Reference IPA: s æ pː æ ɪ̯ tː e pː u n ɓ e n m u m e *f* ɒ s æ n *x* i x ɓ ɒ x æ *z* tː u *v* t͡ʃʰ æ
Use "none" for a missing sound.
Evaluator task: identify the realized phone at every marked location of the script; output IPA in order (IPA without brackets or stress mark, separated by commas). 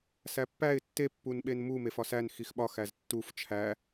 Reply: f, x, z, f